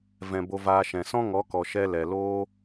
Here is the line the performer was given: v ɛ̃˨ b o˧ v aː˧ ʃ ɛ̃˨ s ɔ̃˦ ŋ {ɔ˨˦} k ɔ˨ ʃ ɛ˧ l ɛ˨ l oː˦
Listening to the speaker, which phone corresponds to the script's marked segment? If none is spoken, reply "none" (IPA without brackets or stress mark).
ɔ˨˦